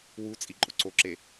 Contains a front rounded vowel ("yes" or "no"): no